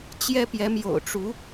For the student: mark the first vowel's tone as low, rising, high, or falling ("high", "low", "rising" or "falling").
high